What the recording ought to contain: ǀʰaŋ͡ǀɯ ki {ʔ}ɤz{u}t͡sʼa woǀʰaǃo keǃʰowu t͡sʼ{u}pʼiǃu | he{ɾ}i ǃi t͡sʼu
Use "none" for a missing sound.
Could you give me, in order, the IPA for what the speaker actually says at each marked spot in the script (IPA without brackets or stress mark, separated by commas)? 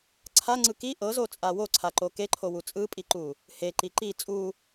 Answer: ʔ, o, ɯ, ǃ